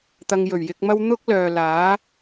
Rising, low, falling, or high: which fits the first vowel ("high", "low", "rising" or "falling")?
low